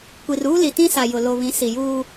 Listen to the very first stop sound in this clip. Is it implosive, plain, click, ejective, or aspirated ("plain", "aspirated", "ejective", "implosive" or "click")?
plain